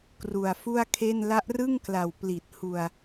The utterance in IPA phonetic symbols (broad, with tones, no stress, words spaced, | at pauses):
kru˨˩a̯fu˥˩a̯kʰe˥˩n la˦˥ʔrɯ˥˩ŋkla˨˩w pli˨˩t̚hu˧a̯